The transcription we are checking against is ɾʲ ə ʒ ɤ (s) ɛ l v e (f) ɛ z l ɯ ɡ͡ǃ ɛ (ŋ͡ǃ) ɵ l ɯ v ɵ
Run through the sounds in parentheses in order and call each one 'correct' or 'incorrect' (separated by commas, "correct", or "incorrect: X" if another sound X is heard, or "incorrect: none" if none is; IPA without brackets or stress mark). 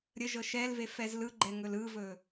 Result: incorrect: ʃ, correct, incorrect: ŋ